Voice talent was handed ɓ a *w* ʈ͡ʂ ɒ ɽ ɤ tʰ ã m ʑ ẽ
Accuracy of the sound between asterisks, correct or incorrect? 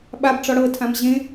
incorrect